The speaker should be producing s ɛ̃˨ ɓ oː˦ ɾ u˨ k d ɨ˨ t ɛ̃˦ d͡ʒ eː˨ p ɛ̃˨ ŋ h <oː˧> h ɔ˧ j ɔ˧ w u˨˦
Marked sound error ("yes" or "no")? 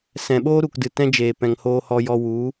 no